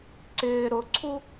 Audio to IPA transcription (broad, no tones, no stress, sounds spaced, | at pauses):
ǀ ɪː ɾ ʊ ǀʰ u